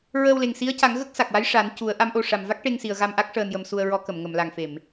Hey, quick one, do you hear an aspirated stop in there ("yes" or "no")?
no